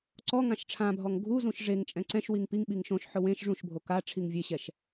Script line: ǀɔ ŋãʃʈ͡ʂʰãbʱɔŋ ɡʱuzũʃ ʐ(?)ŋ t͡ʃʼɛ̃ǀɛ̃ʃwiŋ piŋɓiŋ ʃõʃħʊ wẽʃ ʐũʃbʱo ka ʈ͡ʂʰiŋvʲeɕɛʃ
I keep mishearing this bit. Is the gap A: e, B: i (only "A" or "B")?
A